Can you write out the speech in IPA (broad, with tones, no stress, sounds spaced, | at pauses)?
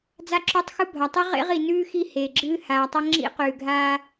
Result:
d͡z a˦ ǁ o˦ tˤ x u˦ bʱ a˨ tˤ ɨ˦ ʁ ḛ˦ ʁ i˨ n ʉː˦ x i˦˨ h e˨ ɡ͡ǁ ɨː˦ h aː˨ tˤ ɐ˦ ŋ͡ǁ ḭ˦ q ʉː˨ ɡʱ aː˦